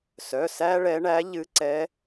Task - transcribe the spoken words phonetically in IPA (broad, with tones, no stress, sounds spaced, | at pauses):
s œ˩˧˩ s æ˥ ɭ ɛ˧˥ ɳ æ˧˥ ʎ ɨ˧˥ ǀ ɛ˧˥